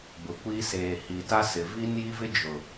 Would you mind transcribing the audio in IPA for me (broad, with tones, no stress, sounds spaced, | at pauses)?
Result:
b ʊ˨ kʷ i˦ s eː˨ h i˨ t a˦ s ɪ˨ v i˦ n j i˦ v ɪ˦ d͡ʒ ʊ˨